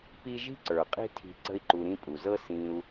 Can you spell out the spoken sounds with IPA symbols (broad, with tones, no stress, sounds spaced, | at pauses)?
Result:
p i˦ ʒ i̤˥ ǀ ə˞˩ qʼ i̤˦ tʰ i̤˨ ǀ ə̤˦ i̯ ǃ u˨ ɾ ĩ˦ pʼ u˩ z ɤ˦ s ĩ˨ u̯